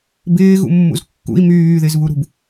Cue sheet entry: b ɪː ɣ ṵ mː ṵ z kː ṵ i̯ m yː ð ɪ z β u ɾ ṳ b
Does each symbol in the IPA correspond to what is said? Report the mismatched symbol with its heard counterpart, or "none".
none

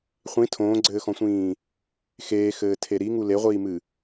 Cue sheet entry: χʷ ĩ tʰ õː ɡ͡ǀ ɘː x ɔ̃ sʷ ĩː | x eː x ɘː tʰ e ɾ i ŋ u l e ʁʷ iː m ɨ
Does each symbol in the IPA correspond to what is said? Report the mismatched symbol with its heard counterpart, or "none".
none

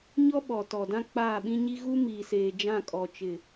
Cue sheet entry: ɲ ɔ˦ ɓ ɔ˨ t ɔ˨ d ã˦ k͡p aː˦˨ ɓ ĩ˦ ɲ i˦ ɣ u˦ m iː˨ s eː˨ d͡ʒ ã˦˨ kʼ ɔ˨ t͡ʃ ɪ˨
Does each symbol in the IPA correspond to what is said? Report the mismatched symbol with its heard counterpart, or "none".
none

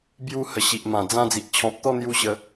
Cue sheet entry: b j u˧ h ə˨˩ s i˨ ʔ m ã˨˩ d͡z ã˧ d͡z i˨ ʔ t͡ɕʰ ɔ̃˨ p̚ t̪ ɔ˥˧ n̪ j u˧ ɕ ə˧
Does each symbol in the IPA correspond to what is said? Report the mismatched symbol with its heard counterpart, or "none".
s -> ɕ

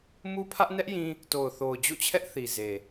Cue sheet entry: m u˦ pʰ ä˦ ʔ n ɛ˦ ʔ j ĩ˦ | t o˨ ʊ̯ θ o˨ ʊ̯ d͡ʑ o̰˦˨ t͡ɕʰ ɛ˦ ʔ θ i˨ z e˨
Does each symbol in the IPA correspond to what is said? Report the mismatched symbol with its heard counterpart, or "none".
none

